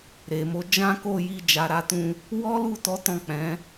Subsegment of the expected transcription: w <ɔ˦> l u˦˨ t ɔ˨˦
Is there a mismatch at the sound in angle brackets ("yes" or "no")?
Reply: no